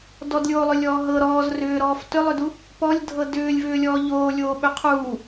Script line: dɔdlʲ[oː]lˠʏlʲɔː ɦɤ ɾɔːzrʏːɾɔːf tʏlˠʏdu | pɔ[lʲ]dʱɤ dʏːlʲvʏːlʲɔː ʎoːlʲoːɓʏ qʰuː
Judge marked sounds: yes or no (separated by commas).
yes, yes